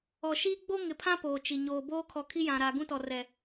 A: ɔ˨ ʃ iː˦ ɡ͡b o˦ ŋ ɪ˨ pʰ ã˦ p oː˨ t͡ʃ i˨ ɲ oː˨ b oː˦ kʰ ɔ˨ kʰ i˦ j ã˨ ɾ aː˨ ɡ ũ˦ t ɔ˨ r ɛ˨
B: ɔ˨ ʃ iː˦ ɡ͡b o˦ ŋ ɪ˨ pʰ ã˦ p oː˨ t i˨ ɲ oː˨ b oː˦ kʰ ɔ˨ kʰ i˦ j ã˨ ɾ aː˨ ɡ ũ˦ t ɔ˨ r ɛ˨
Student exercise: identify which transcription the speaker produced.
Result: A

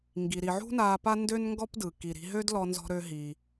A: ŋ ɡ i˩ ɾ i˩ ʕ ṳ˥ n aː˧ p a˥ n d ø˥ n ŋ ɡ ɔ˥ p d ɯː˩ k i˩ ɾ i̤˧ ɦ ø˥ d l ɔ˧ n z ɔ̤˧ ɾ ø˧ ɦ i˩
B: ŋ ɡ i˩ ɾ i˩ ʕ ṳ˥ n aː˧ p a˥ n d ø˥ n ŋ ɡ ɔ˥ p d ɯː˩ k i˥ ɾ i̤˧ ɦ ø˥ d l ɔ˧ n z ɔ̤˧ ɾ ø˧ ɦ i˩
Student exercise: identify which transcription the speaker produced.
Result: A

